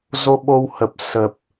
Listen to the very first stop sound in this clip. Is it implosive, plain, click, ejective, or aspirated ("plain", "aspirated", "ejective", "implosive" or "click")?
implosive